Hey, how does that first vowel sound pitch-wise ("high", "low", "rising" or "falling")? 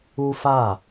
high